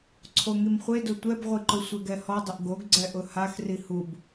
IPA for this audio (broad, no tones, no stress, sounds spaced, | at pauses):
ǀʰ o ŋ i m χʷ e d ʊ tʷ ɛ b ʁʷ i ǃ ʊ sʷ e ɡ ɛ h ɔ dˤ ɪ ʔ ɡ o ɡ ɡ͡ǀ ɛ ʔ ʊ h a x r i h u b